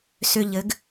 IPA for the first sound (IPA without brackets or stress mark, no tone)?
s